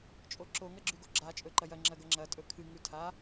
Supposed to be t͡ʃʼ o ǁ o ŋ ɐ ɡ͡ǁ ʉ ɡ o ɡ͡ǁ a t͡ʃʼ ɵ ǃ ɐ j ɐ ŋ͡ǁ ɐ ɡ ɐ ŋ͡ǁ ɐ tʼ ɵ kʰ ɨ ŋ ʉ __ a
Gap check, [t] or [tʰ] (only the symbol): tʰ